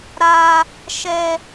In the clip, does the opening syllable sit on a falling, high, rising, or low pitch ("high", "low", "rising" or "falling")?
high